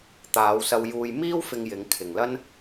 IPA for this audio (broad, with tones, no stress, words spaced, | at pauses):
t̪aː˨˧wsɐ˧w juː˧jmiː˥wfɪ˧ŋjɪ˨˧ŋ kʰɪ˨ŋlɐ˥n